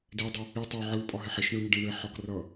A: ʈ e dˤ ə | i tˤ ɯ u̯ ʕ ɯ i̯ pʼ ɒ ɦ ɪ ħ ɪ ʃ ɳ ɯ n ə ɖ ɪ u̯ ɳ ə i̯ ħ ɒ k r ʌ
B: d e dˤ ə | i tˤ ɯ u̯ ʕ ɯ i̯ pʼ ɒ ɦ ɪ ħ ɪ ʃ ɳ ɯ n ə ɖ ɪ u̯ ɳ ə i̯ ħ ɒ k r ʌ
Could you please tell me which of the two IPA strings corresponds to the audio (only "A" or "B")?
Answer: B